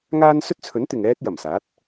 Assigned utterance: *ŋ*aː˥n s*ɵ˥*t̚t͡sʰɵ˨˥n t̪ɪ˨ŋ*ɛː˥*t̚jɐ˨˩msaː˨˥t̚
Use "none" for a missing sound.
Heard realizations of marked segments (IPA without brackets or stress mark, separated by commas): ŋ, ɵ˥, ɛː˥